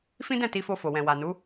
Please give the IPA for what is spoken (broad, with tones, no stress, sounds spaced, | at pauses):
f ĩ˦ d ɛ̃˦˨ t i˧ f o˧ f o˨ w ɛ̃˨ w a˨ n u˨˦